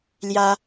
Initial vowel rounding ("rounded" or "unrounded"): unrounded